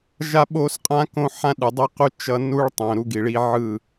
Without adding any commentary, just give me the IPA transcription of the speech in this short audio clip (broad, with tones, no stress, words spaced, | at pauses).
ʒa˦ɓo˦sqʼã˦ kõ˦ ħã˦ɗɯ˨dˤi˦qu˦ t͡ʃʌ˦ nu˦ɭtˤõ˨ ɾu˦ɡi˨ɭi˦ ʕɯ˦˨